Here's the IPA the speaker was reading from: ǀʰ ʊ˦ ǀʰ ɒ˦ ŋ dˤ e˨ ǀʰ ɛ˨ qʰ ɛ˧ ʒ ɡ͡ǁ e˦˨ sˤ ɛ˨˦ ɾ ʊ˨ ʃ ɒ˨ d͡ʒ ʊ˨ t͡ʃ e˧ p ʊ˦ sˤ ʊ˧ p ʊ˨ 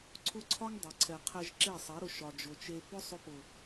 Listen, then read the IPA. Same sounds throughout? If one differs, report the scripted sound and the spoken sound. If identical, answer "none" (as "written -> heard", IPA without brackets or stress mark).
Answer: ɡ͡ǁ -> ǁ